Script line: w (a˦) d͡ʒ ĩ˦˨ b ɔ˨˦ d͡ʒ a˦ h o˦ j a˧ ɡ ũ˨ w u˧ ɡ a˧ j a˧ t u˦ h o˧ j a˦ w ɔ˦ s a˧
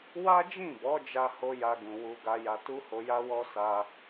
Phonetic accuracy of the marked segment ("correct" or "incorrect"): correct